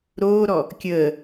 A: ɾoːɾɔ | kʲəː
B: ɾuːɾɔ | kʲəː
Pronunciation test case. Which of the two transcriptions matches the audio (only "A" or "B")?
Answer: A